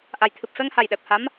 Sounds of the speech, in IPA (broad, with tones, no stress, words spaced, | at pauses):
ʔa˨˩jt̪ʰɨ˨˩p̚fɛ˧ŋha˨˩j ɗɛ˨˩p̚ha˧˥m